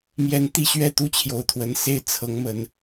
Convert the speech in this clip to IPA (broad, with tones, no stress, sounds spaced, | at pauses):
m j ɛ˧˥ n t̪ i˥˧ ɕ ɥ ɛ˥˩ t̪ u˥ t͡ɕʰ j o˨˩ ʊ̯ t̪ʰ w ə˧˥ n s e˥˩ ɪ̯ t͡sʰ ɤ˧˥ ŋ m ə˧˥ n